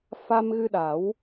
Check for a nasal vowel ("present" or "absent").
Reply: absent